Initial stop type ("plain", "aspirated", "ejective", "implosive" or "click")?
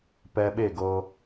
plain